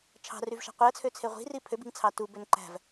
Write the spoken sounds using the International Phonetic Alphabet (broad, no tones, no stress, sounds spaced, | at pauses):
t͡ʃʰ ɑ̤ r y v ʃ æ̤ qʷ i ə̯ t͡sʰ ø t͡sʰ e ʁʷ i̤ r i pʰ ø b i̤ ŋ t͡sʰ ɑ t u b ø n ǃ æ̤ v